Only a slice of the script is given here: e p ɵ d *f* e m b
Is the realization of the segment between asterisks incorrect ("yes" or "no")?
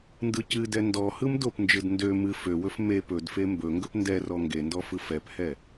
no